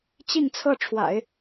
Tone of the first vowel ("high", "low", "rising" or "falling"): falling